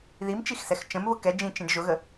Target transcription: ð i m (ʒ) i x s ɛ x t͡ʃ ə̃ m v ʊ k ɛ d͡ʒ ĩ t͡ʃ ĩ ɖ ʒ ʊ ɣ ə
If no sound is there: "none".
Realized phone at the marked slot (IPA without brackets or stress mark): t͡ʃ